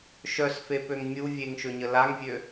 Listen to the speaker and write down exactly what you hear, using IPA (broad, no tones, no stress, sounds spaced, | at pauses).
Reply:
ʃ œ s f e p ø ŋ mʲ u vʲ e ŋ ʃ ø ɲ ə l a ŋ vʲ ø